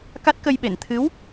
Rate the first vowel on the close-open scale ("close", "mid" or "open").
open